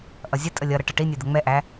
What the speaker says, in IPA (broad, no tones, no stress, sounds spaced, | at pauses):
ʔ ʌ zʲ ə tʼ ə lʲ ʌ ɾ ʌ ʈ ʌ ʈ i nʲ ɛ d̪ ə ŋ͡m ɛ ʔ æ